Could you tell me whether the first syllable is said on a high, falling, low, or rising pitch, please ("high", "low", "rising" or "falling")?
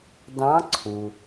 rising